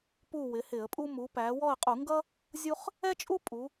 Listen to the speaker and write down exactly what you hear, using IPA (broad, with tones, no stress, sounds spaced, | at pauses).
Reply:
p u˦˨ w ɪ˩˧ h ɪ˧˩˧ ə̯ pʼ u˥ m u˩˧ p æ˩˧ w ɔ˦˨ ə̯ qʼ u˧˩˧ ŋ ɡ ʌ˥ | zʲ u˥ χ | ɛ˥ t͡ʃʼ u˥ pʼ u˩˧